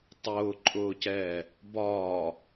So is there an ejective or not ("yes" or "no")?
yes